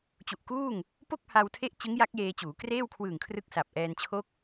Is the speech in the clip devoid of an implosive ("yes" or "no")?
yes